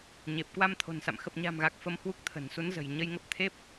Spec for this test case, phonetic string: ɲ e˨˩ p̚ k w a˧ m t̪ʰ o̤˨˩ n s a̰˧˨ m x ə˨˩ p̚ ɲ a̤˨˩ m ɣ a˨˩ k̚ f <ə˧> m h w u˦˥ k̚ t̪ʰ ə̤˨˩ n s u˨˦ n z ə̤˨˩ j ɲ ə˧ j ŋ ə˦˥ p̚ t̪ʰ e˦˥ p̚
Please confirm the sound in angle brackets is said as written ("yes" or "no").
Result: yes